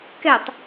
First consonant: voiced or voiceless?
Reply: voiceless